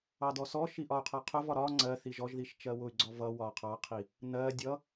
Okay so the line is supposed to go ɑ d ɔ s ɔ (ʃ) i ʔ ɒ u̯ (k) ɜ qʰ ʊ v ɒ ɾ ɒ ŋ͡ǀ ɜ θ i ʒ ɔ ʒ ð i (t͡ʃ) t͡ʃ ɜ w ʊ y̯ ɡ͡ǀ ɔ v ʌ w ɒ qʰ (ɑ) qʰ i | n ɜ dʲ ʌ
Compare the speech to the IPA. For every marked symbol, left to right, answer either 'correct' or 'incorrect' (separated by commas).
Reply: correct, incorrect, incorrect, correct